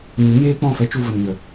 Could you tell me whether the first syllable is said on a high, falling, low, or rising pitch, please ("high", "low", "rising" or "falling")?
rising